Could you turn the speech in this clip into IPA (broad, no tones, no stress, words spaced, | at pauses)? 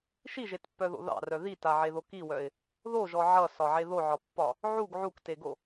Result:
ʃiʒetpːœðo̰ ðɑ̰rœ ðitaʕeðo kiwœɪ̯ | ðoʒɔ ʕʌsɒʕe ðoʕɒpːɒ | ʕuɡ ʕukteɡo